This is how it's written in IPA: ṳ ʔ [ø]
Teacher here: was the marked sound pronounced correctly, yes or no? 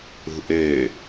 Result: yes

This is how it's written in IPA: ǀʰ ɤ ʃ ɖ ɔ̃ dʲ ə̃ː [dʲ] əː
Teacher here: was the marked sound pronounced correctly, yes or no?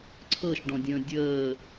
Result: yes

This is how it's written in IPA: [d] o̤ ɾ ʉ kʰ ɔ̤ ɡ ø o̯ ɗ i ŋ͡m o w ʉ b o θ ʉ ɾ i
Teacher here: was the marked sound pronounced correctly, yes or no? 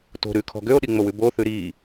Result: no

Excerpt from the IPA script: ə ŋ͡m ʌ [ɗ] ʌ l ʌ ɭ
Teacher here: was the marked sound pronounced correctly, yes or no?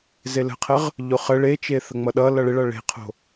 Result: yes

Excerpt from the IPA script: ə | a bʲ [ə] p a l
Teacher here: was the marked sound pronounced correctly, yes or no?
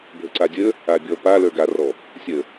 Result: no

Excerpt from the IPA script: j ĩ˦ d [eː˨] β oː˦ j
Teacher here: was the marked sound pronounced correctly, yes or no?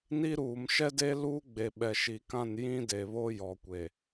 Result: no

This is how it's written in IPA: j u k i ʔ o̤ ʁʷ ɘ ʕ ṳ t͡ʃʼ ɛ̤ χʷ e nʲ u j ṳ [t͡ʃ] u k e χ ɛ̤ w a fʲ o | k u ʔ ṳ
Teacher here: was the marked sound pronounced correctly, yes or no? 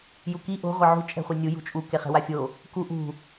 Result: no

